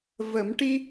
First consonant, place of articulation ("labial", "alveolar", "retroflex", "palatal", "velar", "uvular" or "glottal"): labial